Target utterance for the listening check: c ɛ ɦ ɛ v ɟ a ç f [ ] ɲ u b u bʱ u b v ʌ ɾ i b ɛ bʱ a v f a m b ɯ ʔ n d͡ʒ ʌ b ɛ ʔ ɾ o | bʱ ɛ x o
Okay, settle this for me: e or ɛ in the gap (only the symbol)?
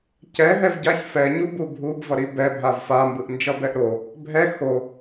ɛ